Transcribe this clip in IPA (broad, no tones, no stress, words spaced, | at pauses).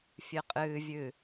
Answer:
fʲɨqʼɨːvʲɨ